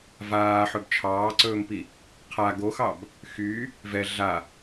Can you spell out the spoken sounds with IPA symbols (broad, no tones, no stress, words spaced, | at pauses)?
vaːħɵb t͡ʃʰɑːǀɵːmpi | qʰa ɡoxɑb | xy | vɛ ɮa